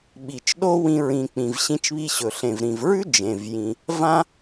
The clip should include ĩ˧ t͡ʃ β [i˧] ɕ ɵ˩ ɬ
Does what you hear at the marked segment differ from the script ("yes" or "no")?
no